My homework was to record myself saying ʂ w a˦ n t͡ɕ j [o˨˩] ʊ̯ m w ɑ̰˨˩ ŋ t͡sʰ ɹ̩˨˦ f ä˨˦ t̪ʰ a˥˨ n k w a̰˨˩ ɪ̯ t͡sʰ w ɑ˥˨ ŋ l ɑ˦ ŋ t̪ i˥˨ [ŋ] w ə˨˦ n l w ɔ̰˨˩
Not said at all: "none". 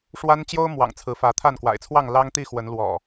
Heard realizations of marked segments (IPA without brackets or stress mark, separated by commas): o˦, x